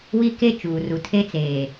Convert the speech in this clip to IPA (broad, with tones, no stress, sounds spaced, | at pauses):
w i˦ k e˦ t͡ʃ uː˨ r u˨ tʰ e˦ t͡s eː˨